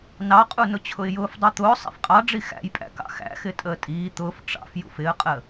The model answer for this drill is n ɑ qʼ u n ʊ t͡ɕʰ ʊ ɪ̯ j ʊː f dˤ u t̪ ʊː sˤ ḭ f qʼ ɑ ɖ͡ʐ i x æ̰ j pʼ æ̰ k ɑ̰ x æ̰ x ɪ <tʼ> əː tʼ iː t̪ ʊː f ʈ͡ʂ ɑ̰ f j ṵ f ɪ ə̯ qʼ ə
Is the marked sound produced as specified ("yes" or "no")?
yes